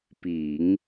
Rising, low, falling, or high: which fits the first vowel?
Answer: low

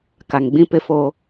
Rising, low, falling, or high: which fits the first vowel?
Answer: low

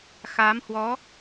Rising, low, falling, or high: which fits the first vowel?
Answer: rising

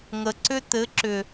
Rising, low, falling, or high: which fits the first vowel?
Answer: low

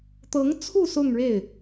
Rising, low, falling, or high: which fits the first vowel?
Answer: rising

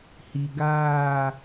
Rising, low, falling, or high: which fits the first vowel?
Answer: low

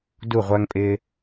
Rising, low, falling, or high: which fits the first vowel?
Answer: falling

